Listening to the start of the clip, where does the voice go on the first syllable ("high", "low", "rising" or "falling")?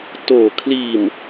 low